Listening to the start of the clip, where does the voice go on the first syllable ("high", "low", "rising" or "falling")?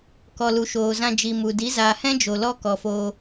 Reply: low